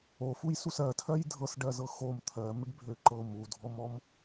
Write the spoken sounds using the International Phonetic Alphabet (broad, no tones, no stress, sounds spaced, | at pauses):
o f u j s u s ɜ tʰ ɜ j dʱ ɤ s ɖ ɜ z ɤ x o m t̪ʰ ɜ m ʏ ɖ bʱ ø ǃ ɤ m u dʱ ɔ m ɔ m